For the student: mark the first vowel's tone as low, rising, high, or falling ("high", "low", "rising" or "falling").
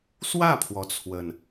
falling